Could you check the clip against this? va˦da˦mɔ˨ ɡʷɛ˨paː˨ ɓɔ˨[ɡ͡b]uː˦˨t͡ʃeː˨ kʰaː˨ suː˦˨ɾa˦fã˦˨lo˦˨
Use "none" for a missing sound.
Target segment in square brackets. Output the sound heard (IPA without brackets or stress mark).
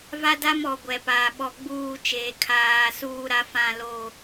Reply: ɡ͡b